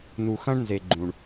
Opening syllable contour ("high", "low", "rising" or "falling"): low